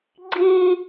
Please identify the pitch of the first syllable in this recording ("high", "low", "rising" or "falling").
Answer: high